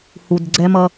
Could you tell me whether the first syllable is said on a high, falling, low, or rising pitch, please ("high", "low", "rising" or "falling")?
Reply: low